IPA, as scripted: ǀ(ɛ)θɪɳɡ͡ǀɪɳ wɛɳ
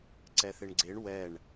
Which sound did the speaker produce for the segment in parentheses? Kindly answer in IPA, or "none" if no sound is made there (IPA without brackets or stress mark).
ɛ